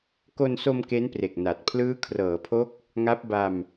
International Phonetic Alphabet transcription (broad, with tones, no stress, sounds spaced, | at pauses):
k o˧ n s o˧ m k e˦˥ n p r e˨˩ k̚ n a˨˩ t̚ pʰ l ɯː˦˥ kʰ r ɤː˩˦ pʰ o˦˥ k̚ | ŋ a˦˥ p̚ b a˧ m